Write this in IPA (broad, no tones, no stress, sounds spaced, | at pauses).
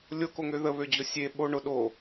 lʲ o k o ŋ ø ð ə β ø d͡ʑ ʊ sʲ e ɓ o ɳ ʊ ɗ o